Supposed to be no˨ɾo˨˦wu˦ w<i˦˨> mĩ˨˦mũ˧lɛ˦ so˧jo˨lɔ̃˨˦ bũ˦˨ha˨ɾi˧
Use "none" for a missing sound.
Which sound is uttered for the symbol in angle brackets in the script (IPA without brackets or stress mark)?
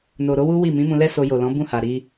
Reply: i˦˨